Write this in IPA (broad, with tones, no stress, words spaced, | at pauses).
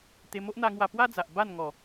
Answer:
t̪e˧ mo˦ʔn̪a˧ŋwa˧ pwa˦d͡za˨ʔ ba˥˧n ŋɔ˨˩